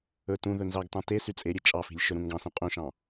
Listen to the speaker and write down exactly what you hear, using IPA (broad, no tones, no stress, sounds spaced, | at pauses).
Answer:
ɵ t ũ ð ɵ n z ɑ ɡ t ɑ̃ t e s y t͡sʼ e ɾʲ e t͡ʃʼ ɑ f i̤ lʲ ʃ ɵ ɾ ũ ŋ ɡ ɑ̃ s ũ qʼ ũ ʃ ɑ̃